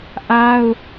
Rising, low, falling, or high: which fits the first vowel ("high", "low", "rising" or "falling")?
high